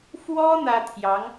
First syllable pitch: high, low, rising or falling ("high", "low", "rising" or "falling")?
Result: high